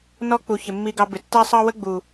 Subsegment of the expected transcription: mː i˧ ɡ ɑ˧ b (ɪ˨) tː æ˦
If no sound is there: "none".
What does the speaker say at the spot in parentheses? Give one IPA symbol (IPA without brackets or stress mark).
ɪ˨